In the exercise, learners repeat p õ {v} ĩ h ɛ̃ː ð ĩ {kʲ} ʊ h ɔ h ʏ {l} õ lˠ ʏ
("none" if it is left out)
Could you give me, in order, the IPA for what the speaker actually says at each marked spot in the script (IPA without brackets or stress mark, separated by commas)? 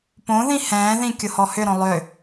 ð, kʲ, ɾ